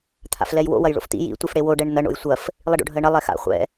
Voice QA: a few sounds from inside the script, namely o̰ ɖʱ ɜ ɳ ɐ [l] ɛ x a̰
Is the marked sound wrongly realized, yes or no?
yes